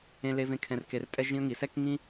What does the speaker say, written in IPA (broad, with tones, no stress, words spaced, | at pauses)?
ẽ˦le˦vẽ˦ kʰɛ̃˧rke˧rtʼɛ˦ ʒĩ˦ə̯ŋi˨˦ sɛ˦kŋĩ˦